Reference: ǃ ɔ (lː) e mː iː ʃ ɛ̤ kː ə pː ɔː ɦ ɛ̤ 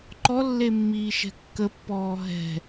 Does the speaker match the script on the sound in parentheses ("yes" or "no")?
yes